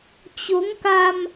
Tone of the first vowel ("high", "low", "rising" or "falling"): rising